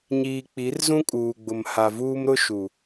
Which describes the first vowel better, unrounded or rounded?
unrounded